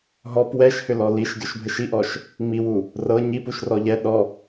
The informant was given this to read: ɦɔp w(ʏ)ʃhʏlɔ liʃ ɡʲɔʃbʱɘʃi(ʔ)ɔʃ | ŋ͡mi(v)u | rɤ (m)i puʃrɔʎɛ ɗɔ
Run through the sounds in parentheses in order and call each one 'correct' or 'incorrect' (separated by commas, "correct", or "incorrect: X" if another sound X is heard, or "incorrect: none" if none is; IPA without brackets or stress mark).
incorrect: ɛ, correct, incorrect: w, incorrect: ɲ